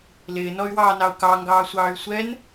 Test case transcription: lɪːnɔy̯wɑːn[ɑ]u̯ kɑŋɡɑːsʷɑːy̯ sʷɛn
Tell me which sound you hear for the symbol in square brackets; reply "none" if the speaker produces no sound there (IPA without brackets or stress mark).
ɑ